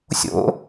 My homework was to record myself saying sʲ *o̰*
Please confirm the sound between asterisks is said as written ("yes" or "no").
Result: yes